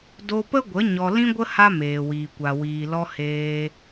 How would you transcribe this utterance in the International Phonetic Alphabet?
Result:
d o˧ p ə˦ ɡʷ ə˨˦ ɲ ɔ˧ l ĩ˦ ɡʷ ə˦ h a˦ m eː˨ w iː˨ kʷ a˨ w iː˨ l ɔ˧ h eː˧

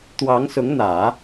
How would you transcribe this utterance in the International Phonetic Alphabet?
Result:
t̪ w ɑ˧˥ ŋ s ʊ˧˥ ŋ n̪ ä˨˩˦

